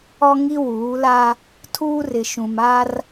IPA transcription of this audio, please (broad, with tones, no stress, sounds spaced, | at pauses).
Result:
ɔ˦ ŋ i˦ w uː˨˦ l a˦ | tʰ uː˦ r ɪ˨ ʃ ũ˨ m a˦ r